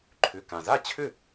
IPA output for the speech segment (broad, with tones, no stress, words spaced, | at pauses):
ǃʰʏ˩˧˩kã˩za˥˩t͡ɕʰʏ˥˩